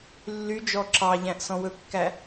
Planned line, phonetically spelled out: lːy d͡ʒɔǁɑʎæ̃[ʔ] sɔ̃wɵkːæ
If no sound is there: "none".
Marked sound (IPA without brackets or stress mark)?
ʔ